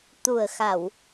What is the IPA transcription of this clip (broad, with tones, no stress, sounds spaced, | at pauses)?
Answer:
t̪ u˨˩ ə̯ x a˨˩˨ w